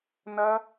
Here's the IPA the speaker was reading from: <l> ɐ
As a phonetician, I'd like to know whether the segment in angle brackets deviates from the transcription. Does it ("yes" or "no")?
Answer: yes